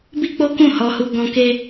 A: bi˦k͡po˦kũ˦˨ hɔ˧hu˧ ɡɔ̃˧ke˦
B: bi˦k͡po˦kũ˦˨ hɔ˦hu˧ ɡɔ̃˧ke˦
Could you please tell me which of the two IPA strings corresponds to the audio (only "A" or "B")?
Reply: A